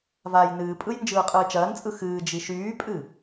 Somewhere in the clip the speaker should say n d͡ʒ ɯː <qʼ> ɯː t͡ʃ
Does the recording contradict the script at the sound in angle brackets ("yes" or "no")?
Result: no